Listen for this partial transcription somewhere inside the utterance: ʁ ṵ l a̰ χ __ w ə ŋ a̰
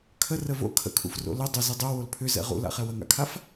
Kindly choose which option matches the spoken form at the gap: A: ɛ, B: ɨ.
A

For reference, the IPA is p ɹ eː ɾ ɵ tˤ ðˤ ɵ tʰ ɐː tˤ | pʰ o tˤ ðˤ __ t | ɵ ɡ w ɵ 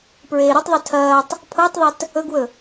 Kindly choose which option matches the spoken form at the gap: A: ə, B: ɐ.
B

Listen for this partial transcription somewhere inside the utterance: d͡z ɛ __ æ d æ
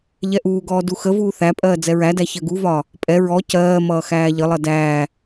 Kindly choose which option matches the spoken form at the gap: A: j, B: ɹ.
B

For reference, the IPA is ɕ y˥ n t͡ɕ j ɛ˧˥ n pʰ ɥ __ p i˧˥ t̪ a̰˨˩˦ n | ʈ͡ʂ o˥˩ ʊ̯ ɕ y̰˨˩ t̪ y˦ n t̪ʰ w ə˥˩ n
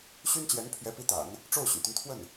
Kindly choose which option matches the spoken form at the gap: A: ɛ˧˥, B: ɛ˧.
A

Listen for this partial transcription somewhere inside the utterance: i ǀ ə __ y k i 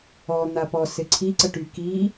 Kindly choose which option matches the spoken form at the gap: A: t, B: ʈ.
B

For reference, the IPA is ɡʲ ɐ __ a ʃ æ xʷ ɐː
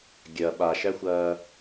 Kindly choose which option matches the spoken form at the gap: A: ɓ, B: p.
A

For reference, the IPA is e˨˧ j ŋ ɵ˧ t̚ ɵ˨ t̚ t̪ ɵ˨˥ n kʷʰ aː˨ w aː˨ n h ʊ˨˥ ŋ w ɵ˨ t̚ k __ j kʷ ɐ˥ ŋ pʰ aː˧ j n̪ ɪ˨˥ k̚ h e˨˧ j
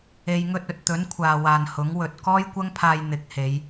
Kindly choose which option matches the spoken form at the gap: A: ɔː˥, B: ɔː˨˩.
A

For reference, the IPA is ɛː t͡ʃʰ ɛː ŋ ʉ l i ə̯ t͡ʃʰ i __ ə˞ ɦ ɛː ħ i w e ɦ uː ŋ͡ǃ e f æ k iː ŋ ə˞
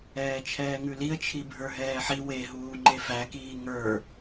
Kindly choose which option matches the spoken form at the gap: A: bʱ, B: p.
A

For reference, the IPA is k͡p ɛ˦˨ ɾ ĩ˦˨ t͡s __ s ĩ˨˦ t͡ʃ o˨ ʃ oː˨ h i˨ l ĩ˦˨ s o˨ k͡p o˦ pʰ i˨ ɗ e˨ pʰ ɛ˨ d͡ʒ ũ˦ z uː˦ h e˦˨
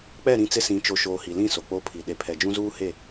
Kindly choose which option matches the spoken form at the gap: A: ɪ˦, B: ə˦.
A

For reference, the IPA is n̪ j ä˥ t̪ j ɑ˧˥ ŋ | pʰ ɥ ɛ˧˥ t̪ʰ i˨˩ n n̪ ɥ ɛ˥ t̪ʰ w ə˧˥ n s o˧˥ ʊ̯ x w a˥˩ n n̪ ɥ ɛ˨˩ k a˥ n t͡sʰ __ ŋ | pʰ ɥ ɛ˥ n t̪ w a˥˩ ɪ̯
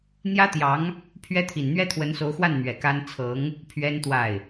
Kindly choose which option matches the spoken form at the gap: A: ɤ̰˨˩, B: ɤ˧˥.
B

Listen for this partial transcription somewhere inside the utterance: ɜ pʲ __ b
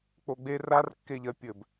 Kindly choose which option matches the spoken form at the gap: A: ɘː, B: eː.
A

